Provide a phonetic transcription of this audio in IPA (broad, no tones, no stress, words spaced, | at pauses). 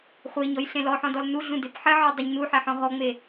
χʷeɲɔj ɬẽlɔħɔ̃dɔl nuɮũ depħɘʕɔ dˤuɲnu ħeħɔ̃ɦɔŋ͡me